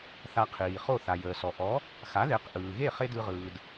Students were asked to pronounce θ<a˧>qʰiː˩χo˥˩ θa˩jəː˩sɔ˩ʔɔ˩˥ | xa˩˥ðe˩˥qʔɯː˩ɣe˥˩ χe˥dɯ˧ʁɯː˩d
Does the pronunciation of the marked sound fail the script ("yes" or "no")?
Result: no